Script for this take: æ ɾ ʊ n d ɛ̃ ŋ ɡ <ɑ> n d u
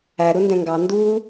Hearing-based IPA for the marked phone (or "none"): ɑ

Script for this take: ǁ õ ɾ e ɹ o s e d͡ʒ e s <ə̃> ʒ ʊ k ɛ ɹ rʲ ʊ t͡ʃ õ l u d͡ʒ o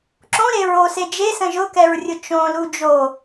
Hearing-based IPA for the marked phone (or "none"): ə̃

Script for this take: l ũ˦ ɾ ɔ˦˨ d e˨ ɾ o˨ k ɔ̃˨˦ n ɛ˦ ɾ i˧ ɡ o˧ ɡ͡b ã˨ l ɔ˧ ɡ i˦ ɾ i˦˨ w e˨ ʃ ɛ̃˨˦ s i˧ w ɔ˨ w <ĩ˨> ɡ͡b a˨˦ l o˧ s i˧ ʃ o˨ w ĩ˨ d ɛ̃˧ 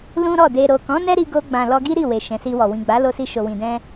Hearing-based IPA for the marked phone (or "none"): ĩ˨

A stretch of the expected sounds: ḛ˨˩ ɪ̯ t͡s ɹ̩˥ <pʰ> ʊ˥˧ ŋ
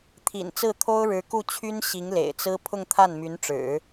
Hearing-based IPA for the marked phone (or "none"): pʰ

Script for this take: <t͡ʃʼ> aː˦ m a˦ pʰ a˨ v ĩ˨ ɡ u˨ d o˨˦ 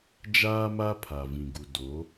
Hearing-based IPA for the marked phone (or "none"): d͡ʒ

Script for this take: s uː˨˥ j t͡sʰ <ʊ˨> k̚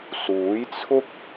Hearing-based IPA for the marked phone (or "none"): ʊ˥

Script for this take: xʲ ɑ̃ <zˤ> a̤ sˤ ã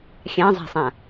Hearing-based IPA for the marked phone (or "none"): zˤ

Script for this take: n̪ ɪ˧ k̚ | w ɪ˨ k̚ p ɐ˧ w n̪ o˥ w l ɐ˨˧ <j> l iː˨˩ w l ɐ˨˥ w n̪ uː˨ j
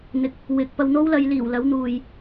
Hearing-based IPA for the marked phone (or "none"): j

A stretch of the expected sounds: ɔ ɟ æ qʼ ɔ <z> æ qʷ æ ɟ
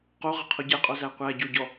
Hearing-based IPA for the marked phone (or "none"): z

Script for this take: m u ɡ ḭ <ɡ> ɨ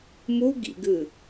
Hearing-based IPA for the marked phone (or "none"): ɡ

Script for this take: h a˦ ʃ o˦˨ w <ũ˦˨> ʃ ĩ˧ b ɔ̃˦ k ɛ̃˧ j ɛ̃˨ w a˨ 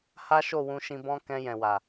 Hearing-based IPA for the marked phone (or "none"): ũ˧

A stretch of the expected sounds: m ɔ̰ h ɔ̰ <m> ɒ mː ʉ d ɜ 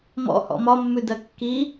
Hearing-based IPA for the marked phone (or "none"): m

